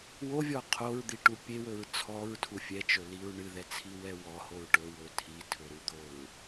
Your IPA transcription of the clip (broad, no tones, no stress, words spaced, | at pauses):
wovʲɔ qʰoɹd̪iʈu pʲewɵɹ t͡sʰɔɹtʰu fʲɛt͡ʃɵliɹ ɳɨðɛt͡sʰiwɛ wɔhoɹ ʈɵwɵ tʰitʰɵɾud̪oɹ